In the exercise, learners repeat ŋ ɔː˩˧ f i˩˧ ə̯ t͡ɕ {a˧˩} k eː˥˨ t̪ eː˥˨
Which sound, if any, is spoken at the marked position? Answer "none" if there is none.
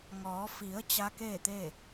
a˧˥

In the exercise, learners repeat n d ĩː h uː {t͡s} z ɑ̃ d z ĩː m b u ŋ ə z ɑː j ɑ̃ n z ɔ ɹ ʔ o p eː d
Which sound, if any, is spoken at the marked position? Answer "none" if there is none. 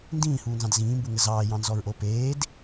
n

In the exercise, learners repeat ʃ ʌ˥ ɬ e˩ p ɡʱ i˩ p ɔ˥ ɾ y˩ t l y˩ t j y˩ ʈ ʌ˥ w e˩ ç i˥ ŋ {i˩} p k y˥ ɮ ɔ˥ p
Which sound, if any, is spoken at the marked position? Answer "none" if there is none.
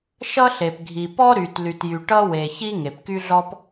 e˩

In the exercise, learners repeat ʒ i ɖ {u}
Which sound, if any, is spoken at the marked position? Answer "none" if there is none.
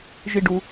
u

